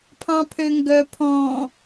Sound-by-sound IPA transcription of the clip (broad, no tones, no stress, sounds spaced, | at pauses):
pʰ ɑ̃ pʰ ø ŋ ɡ œ pʰ ɔ̃ː